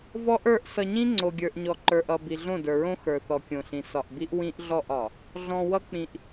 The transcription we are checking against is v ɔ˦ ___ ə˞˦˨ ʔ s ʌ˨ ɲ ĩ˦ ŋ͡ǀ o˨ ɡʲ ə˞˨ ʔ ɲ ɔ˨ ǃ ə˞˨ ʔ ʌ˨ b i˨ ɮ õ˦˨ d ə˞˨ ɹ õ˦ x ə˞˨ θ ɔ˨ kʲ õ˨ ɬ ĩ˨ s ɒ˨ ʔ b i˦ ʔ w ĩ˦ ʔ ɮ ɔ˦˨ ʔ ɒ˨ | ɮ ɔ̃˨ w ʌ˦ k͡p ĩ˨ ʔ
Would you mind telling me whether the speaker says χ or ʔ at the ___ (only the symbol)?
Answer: ʔ